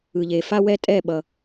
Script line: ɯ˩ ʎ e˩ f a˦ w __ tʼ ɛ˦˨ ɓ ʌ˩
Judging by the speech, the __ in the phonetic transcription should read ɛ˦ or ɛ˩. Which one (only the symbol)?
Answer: ɛ˦